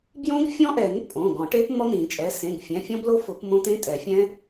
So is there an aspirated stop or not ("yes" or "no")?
no